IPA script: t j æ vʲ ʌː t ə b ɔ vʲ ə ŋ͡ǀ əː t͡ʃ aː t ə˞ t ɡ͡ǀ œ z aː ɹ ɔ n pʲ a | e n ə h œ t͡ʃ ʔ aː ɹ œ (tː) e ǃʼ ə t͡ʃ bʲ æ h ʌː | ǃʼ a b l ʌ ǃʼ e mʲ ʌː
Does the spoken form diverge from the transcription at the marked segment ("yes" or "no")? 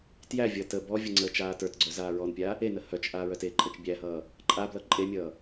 yes